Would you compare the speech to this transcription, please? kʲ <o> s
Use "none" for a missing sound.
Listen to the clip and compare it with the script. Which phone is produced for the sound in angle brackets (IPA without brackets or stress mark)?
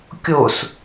o